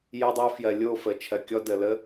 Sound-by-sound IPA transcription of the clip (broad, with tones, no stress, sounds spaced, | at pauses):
j ə˧ dˤ o˧ f j ɜ˨ lʲ o˦˨ f ə˨ t͡ʃʰ ɜ˨ kʲ ɔ˦ d ə˨ l ə˦